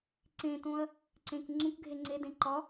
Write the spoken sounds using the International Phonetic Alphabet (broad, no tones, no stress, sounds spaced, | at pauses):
ǀ ẽ t õ ɐ̯ | ǀ ẽ k ŋ͡ǀ ũ k ɡʱ e ŋ͡ǀ e d ẽ ǃ ɒ